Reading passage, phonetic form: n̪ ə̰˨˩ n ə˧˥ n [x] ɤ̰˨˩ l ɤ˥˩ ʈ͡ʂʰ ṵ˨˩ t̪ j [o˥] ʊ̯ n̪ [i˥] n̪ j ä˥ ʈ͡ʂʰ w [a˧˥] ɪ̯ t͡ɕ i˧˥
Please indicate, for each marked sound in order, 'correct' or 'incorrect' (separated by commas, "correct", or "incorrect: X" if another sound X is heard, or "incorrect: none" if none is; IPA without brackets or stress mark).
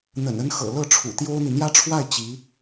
correct, correct, incorrect: i˨, incorrect: a˥˩